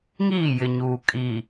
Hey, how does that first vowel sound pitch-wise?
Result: falling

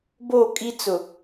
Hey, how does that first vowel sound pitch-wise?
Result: falling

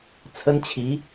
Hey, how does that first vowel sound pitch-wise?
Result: high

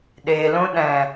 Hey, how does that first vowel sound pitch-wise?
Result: low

